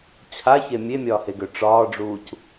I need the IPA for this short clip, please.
t͡ɕʰaçe mʲemʲɒːheɡø ʈ͡ʂɒːɖ͡ʐuːc

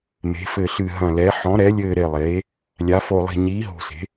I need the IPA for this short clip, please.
me̤˩˧fɘ˨˩ɬɨ˨˩ ɦɐ̃˨˩lɛ˩˧ ħɔ̃˩˧ɾɛ˩˧lʲɘː˨˩ ɾe˨˩lˠeː˩˧ | lʲa˩˧fo˨˩lˠi̤˨˩ ɲiː˩˧ɦo̤˨˩se̤˩˧

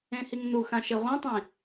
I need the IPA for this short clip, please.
ẽhiŋnuxã ʃeʁʷĩtˤĩ

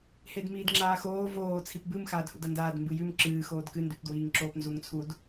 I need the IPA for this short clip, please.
hedmiːdŋ͡ǁaːxoː voː t͡sʰipbɨm xaːdhṵdɐndaːd mbɨjʉm ǁɨː xoːdkɨndʉp dwiːŋǁoːpnzuŋt͡sʰud

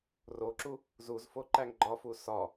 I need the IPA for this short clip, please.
roǁu | zuzfo ǃæŋɡ͡ǃɒfu sɒ

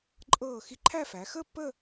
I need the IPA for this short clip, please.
ǃʼɤː˧˩ xi˧ǃʰæ˥˧fæ˩˧ xəː˥˧pːəː˥˧

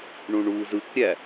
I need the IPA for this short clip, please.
ɳũɳuːzɯkɾʲæ

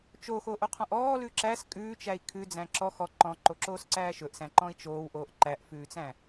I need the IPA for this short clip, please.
t͡ʃoxoʔoqʰɔ̃ʔ ɔːlʉ ǁæːs kʼʉːt͡ʃæi̯ kʰʉd͡zæ̃ ǁɔ xɔ ǃɔ̃ǃoǁoːsǀæː ʃɵʔsæ̃ǃɔ̃i̯ t͡ʃoːwʔoːʔ ǃæʔfʉːt͡sæ̃

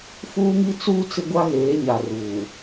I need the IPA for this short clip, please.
fuː˦ŋi˦t͡suː˦ t͡sɪ˦ɡʷa˦ɣeː˨˦ɲa˨ ruː˨

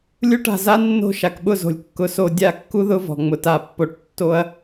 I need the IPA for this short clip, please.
lʲu˦˨ʈa̤˩ za˦˥nːo̤˦˨ʃa˩kɓʊ˦˨ zo̤˩lʲkːʊ˩˥so˦˨ dʲa˦˨kːu˦˥ðʊ˦˥vɔ̤˩ ŋ͡mʊ˩ta˨˩˦pːo˨˩˦ʈ tːo˦˥ɐ̯

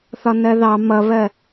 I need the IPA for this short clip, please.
θɒnɜðɑ mʌβɜ

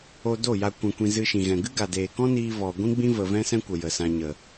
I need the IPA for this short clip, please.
o˧do˦˨ ja˧ kʷã˧kʷĩ˧ zɨ˧ʃĩ˨ɣɛ̃˨ ɡɨ˦ɡa˨deː˨kɔ̃˦ niː˦vɔ˧ ɡʷĩ˦ɡ͡bĩ˦ və˧ vɛ̃˦sɛ̃˦kʷə˨ jə˨sã˧ɲə˨

